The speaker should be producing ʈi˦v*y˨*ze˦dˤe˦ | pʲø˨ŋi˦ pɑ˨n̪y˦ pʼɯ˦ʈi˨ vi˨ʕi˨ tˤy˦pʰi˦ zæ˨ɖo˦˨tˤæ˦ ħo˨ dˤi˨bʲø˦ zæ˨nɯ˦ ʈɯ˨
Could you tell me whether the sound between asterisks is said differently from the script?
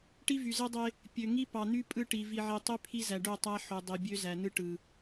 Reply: no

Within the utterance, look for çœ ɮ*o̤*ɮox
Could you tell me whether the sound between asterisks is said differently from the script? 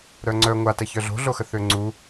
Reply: no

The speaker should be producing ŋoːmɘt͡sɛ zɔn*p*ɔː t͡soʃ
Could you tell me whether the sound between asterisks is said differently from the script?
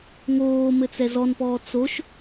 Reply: no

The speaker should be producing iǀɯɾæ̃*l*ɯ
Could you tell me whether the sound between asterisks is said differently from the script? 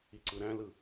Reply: no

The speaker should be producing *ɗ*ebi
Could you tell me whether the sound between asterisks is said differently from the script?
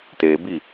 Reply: yes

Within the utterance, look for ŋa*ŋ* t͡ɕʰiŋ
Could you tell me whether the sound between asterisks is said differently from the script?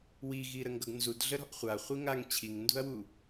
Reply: no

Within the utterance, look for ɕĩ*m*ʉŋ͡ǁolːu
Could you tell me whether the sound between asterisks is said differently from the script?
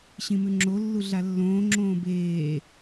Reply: no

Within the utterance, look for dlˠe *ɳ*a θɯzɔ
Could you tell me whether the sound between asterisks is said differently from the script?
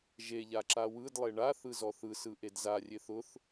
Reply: no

